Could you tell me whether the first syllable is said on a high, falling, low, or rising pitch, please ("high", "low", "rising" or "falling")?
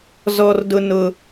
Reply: high